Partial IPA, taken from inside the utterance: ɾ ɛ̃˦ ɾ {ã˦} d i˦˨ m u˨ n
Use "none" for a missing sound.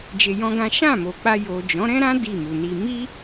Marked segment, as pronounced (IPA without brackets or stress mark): ã˦